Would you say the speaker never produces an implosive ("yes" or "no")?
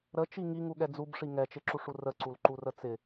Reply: no